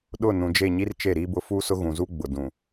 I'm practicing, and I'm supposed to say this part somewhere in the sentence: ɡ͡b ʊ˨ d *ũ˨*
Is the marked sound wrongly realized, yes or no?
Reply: no